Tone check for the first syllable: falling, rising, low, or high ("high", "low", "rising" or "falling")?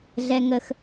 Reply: high